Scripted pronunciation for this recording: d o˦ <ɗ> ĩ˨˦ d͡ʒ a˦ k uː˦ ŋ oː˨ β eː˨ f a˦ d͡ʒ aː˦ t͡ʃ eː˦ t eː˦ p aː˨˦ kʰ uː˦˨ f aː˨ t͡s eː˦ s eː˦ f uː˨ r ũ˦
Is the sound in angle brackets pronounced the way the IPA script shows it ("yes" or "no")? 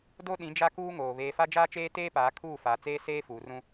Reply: yes